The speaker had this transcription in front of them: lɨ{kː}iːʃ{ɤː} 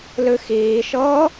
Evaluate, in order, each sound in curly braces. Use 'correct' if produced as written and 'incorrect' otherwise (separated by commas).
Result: incorrect, correct